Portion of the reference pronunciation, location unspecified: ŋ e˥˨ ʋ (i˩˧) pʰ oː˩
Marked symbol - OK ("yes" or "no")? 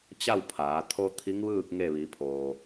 yes